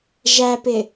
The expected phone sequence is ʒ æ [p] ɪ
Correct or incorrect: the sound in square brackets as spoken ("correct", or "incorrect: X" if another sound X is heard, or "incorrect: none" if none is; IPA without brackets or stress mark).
correct